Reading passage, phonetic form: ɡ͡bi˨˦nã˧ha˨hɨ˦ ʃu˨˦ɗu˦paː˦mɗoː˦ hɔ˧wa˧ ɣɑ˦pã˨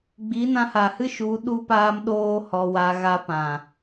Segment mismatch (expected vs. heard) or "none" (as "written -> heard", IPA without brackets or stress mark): ɑ˦ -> a˦